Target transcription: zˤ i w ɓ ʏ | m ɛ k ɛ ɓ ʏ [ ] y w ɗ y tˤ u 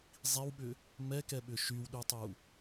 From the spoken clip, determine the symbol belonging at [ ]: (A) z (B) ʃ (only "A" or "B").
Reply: B